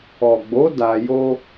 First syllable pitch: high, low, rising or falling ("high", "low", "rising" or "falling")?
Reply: low